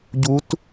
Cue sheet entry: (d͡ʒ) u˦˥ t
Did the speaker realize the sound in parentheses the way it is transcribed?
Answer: no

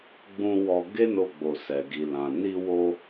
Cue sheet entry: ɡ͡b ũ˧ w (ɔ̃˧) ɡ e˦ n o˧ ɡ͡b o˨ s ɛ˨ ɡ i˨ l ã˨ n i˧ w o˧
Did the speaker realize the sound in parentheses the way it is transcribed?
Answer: no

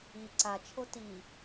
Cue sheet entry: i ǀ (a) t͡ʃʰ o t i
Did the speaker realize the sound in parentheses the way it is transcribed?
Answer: yes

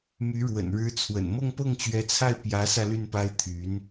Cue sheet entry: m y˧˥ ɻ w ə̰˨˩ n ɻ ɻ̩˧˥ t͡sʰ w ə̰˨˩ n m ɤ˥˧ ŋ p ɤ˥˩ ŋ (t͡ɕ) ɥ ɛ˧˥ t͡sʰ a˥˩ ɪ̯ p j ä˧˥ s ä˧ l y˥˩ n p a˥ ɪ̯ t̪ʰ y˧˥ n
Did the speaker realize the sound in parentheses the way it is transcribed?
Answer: yes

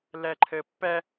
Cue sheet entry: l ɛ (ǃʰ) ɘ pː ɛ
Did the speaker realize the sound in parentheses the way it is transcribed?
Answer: yes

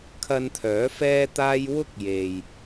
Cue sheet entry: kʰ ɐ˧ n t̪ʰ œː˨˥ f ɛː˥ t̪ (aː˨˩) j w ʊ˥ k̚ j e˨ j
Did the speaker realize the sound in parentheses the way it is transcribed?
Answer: no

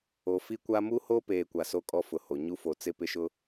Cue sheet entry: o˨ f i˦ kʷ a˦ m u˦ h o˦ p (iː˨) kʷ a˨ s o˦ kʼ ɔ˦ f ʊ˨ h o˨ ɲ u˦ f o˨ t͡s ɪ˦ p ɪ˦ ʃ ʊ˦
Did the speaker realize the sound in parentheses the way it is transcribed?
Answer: no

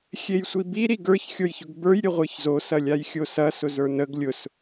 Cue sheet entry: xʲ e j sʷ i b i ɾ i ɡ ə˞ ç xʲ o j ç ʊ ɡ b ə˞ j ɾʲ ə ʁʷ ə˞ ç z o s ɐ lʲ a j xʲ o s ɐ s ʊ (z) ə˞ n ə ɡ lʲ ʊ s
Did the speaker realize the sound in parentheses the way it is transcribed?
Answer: yes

